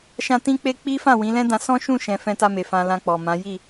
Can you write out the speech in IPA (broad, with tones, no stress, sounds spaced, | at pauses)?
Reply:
ʃ ã˧ t ĩ˦ k͡p e˦ k͡p i˦ f ã˦˨ w ĩ˨˦ l ɛ̃˦ d ã˧ s ɔ̃˦ ʃ ũ˦˨ ʃ ɛ̃˨ f ɛ̃˧ t a˧ m e˨ f ã˧ l ã˧ k͡p ɔ˨ m ã˨˦ j i˦˨